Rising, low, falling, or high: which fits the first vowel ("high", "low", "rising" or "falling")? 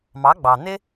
rising